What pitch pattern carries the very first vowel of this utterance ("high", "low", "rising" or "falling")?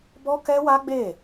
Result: high